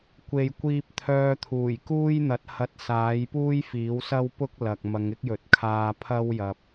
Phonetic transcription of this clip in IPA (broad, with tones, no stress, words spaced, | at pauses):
kʷe˨jkʷiː˧p̚t̪ʰœː˧t̪ʰuː˨˩j kuː˥jn̪ɐ˨˥t̚ hɐ˧t̚saː˨˥jpuː˥j fiː˨˥wsɐ˥wpʊ˥k̚lɐ˨k̚ mɐ˨˧ŋɪ˥k̚jɵ˨˥t̚kʰaː˧ pʰɐ˥wjɐ˨p̚